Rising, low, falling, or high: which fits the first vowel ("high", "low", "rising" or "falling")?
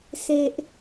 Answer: low